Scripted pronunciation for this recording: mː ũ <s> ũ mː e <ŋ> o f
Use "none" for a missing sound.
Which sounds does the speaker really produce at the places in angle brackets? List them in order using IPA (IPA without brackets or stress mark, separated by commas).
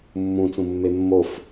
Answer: t͡s, mː